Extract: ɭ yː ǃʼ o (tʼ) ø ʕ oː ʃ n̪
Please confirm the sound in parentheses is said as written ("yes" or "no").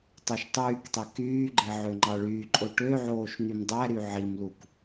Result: no